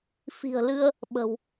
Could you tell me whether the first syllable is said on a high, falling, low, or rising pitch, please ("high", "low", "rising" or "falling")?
low